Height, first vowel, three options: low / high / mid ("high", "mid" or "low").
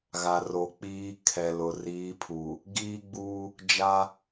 low